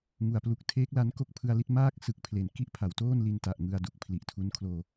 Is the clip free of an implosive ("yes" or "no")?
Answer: yes